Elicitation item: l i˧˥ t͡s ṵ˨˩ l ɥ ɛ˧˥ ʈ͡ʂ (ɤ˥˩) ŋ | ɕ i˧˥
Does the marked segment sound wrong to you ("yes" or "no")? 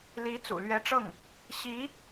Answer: no